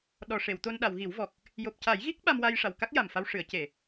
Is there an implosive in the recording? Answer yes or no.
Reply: yes